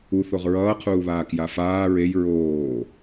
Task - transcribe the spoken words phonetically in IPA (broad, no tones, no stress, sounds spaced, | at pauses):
u θ o ʁ ɹ ʌː qʰ uː β aː k j a f aː ɹ e j ɹ oː